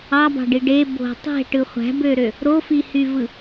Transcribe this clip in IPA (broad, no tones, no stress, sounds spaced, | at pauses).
ɑ b ɑ̤ ɖ i ɖ e b o̤ tˤ e̤ ʈ ɯ χʷ æ̤ b ø ɾ ø | ɾ o f i h y v ɯ